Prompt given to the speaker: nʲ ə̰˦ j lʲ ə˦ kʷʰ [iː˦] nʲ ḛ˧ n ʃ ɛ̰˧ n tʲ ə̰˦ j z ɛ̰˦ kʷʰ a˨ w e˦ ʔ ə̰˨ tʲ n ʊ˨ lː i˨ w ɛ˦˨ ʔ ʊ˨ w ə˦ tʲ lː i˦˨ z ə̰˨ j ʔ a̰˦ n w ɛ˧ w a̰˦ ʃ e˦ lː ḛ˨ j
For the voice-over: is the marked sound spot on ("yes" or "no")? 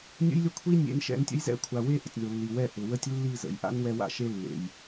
no